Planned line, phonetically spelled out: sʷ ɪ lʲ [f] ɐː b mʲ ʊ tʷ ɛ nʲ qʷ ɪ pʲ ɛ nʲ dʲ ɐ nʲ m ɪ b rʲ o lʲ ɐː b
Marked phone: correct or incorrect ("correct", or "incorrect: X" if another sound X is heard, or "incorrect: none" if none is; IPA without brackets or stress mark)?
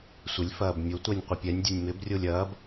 correct